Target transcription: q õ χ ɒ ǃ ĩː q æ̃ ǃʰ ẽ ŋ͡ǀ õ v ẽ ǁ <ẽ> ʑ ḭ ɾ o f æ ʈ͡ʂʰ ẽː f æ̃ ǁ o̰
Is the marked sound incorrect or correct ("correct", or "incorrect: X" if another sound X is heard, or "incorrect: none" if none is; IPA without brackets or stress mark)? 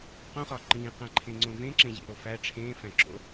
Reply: correct